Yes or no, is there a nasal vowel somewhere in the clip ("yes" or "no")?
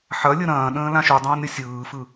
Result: yes